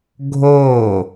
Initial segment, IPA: ɡʱ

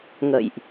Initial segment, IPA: ŋ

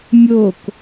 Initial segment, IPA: mʲ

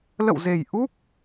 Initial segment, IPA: l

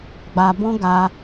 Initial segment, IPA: ɡ͡b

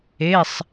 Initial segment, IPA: e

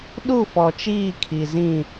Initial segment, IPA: ɗ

